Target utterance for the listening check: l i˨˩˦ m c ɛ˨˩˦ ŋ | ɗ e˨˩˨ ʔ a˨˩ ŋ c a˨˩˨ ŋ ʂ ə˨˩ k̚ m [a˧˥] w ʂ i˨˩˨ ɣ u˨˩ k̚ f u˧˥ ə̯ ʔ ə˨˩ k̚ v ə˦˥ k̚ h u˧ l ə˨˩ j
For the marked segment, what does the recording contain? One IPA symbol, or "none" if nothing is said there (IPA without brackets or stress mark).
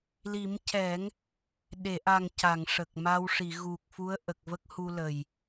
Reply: a˧